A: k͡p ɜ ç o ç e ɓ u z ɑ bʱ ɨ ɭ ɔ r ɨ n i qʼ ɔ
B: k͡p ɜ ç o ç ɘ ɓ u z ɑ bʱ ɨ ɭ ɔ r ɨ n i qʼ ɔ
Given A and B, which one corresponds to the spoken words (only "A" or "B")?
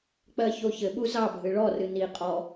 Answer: B